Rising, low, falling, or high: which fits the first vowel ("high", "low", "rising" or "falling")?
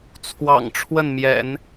low